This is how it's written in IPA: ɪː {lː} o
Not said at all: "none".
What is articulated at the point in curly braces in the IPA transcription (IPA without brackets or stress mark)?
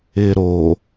ɾ